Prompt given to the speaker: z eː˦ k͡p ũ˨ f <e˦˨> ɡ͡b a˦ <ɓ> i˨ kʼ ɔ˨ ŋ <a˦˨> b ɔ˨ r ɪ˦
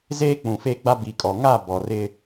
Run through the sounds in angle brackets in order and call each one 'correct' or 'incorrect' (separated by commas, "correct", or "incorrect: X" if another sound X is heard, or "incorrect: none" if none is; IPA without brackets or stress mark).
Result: correct, incorrect: b, correct